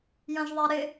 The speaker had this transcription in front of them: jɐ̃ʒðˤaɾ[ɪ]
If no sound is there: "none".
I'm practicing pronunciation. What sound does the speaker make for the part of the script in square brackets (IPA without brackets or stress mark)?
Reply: ɪ